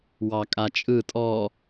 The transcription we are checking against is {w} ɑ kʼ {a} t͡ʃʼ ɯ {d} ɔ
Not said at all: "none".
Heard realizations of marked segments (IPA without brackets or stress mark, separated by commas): w, a, tʼ